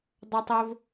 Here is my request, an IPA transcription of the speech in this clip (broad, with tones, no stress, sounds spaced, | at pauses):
dˤ o˥ tˤ oː˥ v